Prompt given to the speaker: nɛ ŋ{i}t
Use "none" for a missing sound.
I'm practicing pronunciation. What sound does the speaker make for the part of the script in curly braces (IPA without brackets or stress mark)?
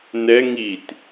i